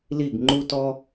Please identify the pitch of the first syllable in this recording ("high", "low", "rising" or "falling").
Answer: falling